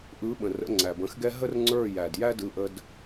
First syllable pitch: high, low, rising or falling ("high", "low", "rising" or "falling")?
rising